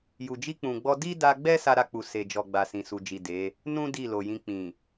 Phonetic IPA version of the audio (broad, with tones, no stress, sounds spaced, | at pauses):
j u˨ d͡ʒ i˧ k͡p ũ˨ ɡ͡b ɔ˧ d i˦ d a˧ ɡ͡b ɛ˦ s a˦ ɾ a˦˨ k͡p u˨ s e˨ d͡ʒ ɔ˨ ɡ͡b a˨ s ĩ˨ s u˨ d͡ʒ i˨ d e˨˦ | n ũ˦ d i˦˨ l o˨ j ĩ˧ k͡p ĩ˨